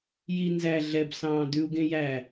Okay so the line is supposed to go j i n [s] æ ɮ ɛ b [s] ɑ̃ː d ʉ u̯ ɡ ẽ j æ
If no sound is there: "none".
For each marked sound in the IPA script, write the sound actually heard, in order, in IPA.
z, s

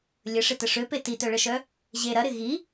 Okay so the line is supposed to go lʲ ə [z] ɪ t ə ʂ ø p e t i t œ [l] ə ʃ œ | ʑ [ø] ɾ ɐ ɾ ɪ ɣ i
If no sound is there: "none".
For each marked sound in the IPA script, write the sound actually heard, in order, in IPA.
ʂ, ɭ, e

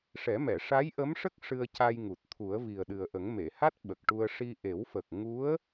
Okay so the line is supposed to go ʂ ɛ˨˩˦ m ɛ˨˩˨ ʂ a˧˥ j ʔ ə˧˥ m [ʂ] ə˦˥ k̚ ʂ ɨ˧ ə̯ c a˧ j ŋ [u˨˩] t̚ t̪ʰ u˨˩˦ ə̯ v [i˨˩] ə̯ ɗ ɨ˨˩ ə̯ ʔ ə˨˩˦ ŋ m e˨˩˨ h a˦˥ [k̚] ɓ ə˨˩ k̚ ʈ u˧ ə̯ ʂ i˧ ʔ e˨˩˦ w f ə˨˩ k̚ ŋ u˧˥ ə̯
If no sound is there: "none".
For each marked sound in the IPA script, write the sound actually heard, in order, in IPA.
ʂ, u˨˩, i˨˩, t̚

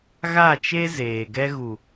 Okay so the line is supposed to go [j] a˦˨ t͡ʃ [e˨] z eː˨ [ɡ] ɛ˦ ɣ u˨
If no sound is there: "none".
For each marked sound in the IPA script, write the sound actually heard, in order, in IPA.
ɣ, e˦, ɡ

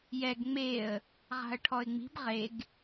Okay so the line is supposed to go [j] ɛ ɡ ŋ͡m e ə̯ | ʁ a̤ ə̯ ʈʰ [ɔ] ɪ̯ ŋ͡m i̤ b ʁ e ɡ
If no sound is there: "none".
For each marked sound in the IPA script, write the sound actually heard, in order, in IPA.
j, ɔ

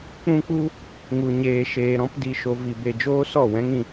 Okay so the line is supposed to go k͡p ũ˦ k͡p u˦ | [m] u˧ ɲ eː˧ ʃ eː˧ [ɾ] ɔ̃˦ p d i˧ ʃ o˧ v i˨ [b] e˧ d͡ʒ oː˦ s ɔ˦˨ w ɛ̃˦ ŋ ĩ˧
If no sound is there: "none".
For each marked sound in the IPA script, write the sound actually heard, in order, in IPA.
ŋ, ɾ, b

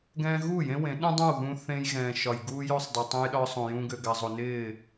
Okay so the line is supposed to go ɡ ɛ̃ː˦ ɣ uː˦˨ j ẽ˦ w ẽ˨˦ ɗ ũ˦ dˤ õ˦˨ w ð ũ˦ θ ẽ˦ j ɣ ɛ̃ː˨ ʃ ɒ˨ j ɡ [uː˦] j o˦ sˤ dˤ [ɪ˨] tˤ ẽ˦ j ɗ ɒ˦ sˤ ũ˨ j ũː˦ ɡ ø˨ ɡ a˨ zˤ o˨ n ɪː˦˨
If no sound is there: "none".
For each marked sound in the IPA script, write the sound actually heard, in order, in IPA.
uː˦, ɪ˨

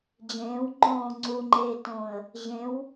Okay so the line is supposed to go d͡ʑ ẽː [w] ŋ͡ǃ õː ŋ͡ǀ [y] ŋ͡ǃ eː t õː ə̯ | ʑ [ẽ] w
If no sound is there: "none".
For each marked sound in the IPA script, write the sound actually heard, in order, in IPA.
w, u, ẽ

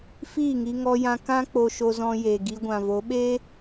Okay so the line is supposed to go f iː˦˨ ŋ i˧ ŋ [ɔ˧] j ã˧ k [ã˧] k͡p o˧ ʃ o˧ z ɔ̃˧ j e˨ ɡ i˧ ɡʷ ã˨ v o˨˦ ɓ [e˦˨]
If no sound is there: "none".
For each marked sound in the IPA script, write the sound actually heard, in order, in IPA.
ɔ˧, ã˦, e˦

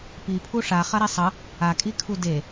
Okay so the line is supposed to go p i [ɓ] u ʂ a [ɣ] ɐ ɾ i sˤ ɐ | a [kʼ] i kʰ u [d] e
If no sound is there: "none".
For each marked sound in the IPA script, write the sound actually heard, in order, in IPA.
pʰ, χ, kʼ, d

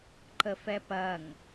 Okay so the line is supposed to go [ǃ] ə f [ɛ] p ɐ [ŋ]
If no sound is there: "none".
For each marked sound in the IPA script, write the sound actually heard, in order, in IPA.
ǃ, ɛ, ŋ

